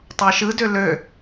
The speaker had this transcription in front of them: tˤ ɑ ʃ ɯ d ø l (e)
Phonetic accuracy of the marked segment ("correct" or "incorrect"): incorrect